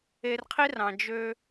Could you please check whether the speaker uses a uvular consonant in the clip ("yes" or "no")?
yes